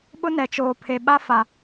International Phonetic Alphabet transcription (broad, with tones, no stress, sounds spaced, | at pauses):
ɓ ʊ˦ n ɛ˨ t͡ʃ oː˨ pʰ e˨ ɓ a˦ f a˨